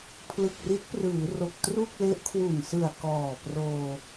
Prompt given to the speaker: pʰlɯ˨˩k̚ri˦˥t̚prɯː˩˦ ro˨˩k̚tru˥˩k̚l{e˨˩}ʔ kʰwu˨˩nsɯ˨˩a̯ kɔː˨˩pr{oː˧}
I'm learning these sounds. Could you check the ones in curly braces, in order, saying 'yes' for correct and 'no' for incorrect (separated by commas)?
no, yes